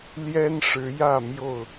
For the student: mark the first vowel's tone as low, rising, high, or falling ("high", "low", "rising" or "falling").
high